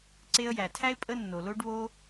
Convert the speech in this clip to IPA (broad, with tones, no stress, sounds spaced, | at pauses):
ǀ e˧ ə̯ j æ˨ tʰ æ˦ ɪ̯ pʼ ə˦ nː o˨ l o˦ ɖ β o˦